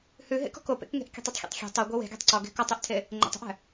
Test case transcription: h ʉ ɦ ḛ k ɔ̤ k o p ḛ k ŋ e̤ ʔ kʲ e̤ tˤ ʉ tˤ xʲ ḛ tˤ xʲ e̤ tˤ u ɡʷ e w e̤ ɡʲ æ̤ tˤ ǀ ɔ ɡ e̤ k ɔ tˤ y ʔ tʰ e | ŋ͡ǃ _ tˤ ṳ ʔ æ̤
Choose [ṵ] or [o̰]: o̰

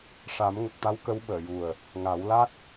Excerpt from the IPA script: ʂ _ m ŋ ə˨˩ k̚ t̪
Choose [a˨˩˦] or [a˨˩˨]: a˨˩˦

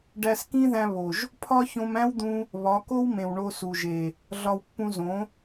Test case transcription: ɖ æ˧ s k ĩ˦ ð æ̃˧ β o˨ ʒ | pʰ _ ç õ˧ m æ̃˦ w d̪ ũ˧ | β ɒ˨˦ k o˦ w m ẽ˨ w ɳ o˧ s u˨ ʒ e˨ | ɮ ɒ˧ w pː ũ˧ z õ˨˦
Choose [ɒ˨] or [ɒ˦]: ɒ˦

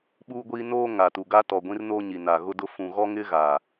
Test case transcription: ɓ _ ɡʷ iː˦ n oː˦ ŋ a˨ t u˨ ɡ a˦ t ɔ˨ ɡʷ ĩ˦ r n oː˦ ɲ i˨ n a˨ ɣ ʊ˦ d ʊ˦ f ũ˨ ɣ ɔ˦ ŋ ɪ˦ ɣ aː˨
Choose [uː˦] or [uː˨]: uː˦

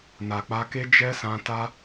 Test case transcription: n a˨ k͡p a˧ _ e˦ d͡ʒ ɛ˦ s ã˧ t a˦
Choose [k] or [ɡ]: k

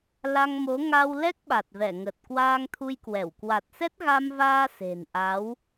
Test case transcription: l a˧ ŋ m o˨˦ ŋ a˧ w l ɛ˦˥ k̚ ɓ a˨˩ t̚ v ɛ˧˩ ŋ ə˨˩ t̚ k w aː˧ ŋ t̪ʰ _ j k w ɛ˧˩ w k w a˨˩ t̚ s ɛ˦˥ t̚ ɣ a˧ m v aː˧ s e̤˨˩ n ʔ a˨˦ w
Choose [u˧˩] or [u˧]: u˧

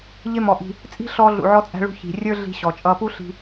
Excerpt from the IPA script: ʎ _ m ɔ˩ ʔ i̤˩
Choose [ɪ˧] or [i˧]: ɪ˧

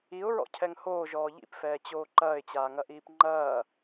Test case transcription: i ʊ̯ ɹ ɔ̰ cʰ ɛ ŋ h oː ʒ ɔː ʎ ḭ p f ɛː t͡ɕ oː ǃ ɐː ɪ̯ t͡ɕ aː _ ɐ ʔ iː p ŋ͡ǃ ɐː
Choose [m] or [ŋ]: ŋ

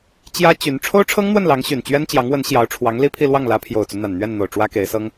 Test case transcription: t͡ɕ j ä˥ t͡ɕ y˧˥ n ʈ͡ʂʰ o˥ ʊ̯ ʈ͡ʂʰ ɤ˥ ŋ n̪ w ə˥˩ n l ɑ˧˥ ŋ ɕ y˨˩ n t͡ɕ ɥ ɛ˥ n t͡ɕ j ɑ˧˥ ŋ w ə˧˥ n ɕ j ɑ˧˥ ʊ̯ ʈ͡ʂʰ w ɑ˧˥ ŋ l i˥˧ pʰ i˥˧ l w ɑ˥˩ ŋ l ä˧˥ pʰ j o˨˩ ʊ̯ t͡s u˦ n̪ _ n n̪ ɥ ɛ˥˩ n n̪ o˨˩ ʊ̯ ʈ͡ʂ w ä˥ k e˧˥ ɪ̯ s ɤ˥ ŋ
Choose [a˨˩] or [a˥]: a˨˩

